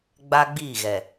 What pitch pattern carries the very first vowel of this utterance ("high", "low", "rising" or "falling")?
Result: high